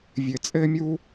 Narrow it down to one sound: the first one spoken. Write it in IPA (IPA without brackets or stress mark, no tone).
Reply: vʲ